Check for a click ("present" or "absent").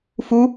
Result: absent